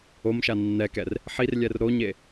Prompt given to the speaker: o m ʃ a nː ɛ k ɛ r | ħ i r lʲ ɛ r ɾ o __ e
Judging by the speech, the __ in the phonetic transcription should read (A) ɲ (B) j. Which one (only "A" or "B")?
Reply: A